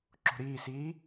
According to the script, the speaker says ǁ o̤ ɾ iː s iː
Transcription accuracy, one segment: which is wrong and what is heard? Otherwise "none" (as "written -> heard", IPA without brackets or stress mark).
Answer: none